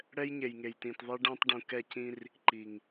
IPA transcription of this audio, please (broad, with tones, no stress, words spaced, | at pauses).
ɽɛ˦jɲe˨jŋe˨jtĩ˨t ðˤe˦ɖã˦tˤ ɖũ˨ kɛ˦˨cĩ˦r | ǃi˨ŋ